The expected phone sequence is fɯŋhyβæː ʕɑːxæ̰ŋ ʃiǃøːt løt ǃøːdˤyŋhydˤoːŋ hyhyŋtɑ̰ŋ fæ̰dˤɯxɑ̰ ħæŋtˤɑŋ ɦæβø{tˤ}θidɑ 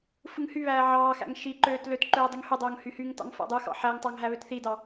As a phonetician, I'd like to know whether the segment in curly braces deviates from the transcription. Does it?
yes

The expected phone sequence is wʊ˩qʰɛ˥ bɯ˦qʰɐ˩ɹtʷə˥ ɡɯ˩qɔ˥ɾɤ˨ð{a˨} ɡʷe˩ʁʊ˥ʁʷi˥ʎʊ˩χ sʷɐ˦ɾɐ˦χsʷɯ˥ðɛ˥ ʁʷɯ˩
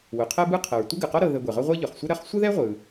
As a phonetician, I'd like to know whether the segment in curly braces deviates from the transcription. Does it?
yes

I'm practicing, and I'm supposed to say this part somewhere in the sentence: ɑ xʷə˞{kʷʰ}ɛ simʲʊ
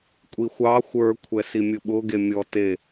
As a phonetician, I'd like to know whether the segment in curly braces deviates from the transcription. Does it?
no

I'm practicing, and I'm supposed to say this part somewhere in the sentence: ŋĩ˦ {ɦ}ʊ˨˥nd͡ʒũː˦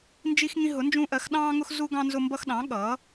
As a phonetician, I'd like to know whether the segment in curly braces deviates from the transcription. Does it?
no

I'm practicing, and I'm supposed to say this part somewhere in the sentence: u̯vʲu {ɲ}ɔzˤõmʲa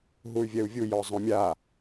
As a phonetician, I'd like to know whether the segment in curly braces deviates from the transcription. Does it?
yes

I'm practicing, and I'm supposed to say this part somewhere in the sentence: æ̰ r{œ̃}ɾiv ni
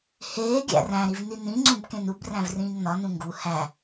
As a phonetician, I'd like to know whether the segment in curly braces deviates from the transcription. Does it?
yes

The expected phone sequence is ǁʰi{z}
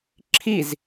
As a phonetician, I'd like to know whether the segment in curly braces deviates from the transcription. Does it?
no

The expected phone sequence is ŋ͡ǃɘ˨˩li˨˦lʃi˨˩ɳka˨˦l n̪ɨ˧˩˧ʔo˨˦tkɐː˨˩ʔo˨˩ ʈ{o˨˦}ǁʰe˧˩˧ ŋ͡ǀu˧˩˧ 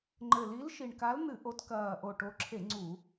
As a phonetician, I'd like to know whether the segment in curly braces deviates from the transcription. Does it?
no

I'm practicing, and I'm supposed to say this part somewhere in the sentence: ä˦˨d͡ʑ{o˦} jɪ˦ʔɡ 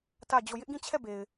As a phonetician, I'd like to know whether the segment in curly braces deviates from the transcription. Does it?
yes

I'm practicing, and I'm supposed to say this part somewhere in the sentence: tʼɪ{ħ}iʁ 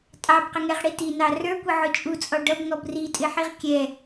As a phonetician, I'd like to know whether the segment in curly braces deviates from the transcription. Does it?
no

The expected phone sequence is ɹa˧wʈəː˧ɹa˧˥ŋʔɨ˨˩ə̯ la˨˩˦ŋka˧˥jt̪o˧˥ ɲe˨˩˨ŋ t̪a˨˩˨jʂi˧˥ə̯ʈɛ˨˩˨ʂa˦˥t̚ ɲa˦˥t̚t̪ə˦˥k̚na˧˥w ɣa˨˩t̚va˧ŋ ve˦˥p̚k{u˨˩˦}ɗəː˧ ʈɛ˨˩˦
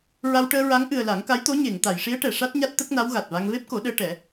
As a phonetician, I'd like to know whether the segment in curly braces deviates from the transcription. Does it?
yes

